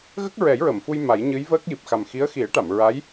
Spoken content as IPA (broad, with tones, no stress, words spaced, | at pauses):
ɣə˦˥k̚ɹɛ˨˩˦jɹə˨˩˨mfu˧j ma˨˩˦jɲɨ˧˥jvəː˦˥k̚ji˨˩p̚ xa˨˩mxi˧˥ə̯xi˨˩˦ə̯ʈa˨˩˨m ɹa˧˥j